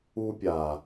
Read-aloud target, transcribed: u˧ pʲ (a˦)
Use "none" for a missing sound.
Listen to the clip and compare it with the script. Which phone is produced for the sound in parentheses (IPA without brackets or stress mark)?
a˨